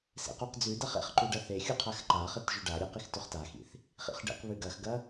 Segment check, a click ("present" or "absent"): present